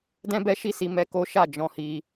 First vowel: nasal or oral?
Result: nasal